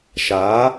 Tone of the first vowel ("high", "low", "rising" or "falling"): rising